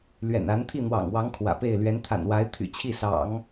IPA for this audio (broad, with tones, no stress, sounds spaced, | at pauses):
l ɥ ɛ̰˨˩ n a˧˥ n t̪ʰ i˥˩ n̪ w ɑ̰˨˩ ŋ w ɑ˧˥ ŋ kʰ w ä̰˨˩ p e˥˩ ɪ̯ l ɥ ɛ˧˥ n t̪ʰ a̰˨˩ n w a˧˥ ɪ̯ t̪ʰ y̰˨˩ t͡ɕʰ i˥˩ s ɑ̰˨˩˦ ŋ